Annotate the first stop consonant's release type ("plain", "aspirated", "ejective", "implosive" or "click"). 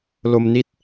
plain